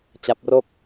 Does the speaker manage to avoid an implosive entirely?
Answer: yes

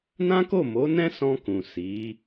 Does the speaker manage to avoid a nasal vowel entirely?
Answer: no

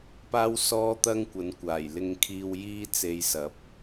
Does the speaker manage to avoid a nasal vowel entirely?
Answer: yes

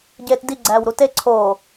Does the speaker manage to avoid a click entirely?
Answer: no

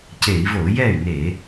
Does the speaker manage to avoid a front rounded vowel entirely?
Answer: no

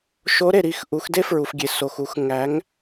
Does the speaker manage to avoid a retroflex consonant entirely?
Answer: yes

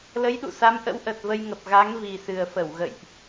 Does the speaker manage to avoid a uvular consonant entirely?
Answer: yes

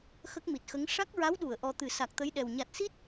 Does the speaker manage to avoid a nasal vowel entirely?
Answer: yes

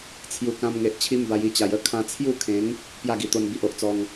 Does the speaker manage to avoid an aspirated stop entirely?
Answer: no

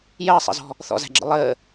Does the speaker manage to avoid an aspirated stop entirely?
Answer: yes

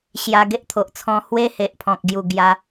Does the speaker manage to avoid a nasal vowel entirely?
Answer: no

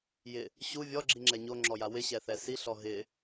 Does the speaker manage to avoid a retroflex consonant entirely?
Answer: yes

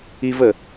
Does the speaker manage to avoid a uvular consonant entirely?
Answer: yes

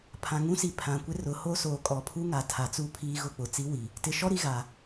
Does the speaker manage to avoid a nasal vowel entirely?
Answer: no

